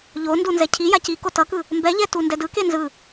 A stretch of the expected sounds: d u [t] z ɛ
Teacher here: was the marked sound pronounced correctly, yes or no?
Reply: no